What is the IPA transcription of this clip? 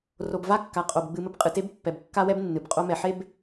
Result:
r o˨ b v a˦ kː a˨ qʼ o˨ b ɡ͡b ɨ˨ m ɘ˦ b qʼ ɨ˨ t e˦ b pː ɛ˨ b kː a˦ w ɛ˦ b nː ɨ˨ b qʼ o˦ m ɛ˨ ħ e˦ b

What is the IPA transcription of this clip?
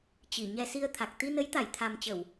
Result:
t͡ɕ i˧˩ ɲ ɛ˧ s i˧ ə̯ t̪ʰ a˨˩ k̚ t̪ i˧ n ə˨˦ j t̪ a˧˩ j t̪ʰ a˨˩ m t͡ɕ ə˧˩˨ w

